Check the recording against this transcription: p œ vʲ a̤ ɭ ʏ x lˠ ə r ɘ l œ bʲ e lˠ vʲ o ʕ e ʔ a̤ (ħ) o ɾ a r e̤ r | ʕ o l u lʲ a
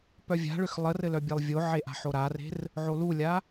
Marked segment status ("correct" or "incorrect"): correct